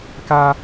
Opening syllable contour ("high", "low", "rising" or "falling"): high